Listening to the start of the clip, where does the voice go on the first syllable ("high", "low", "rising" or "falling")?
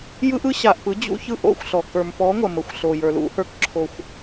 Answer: high